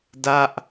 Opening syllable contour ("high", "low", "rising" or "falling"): falling